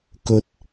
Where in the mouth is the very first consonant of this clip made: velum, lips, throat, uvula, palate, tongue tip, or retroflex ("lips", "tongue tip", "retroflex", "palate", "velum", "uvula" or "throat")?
velum